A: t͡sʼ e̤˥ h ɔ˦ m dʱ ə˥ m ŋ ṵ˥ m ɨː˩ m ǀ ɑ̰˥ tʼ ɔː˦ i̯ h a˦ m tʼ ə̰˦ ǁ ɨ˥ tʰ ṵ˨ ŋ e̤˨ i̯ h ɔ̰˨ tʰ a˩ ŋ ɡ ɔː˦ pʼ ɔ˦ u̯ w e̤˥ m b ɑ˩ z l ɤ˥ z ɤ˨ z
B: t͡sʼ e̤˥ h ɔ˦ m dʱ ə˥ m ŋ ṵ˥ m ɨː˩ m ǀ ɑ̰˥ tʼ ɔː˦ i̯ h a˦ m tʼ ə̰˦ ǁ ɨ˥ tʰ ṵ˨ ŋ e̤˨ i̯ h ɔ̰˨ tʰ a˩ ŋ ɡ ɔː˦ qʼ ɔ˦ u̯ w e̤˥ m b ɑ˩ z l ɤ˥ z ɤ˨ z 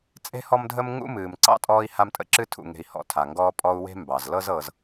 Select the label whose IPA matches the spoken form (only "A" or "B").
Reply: A